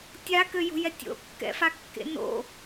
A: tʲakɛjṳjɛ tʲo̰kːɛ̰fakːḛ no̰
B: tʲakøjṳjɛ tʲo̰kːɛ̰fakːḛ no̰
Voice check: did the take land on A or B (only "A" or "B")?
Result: B